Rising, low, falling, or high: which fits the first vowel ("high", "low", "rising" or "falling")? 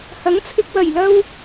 rising